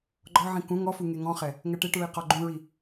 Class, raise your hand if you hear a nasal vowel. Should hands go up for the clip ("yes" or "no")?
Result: yes